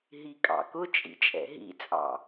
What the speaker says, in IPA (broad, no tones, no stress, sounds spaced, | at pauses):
ɦ i kʼ ɑ̰ k ʊ t͡ʃʼ ḭ t͡ʃʼ ɛ̰ ɦ ḭ t͡sʼ ɑ̰